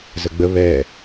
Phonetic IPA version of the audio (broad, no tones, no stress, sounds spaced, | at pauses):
z ə ɡ͡b ə β ɛ